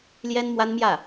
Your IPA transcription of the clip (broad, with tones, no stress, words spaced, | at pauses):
ljɛ˥nmwa˥nmjä˥˩